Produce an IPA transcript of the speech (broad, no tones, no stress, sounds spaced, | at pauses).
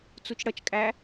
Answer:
t͡s u t͡ʃ ɽ ʌ t͡ʃ kʼ æ